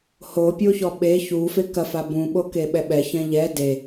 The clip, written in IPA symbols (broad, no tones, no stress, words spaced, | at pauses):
hopʲoçɔ ɓe çufe kɐfa bũɓokeɓɛ ɓɛçɛ̃ ʎɛ de